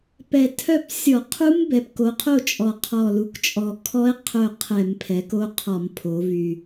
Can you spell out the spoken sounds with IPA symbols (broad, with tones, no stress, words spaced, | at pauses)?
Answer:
pɛ˨˩ tʰœ˥˨p sʲɔ˧˩˧ qʰu˦˥m bɛ˩˧pko˩˧qʰo˥˨ t͡ʃʼɔ˨˩ qʰɔ˨˩lu˩˧kt͡ʃʼɔ˨˩ kʰɔ˦˥e̯ qʰœ˥˨ qʰɛ˧˩˧mpʰɛ˩˧ko˦˥ qʰɔ˧˩˧mpʰo˩˧vy˨˩